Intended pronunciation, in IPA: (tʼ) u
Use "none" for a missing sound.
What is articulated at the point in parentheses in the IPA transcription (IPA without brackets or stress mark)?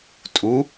tʼ